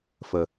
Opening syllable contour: low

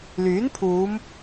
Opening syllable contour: rising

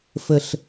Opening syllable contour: high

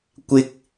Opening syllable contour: high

